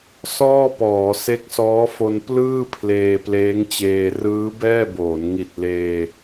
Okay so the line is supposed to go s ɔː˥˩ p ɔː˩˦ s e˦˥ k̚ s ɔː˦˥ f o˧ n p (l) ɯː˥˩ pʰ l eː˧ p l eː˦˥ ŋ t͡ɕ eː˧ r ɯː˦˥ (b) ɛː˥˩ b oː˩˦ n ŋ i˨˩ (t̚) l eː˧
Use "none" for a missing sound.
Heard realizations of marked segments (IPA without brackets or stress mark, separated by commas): l, b, t̚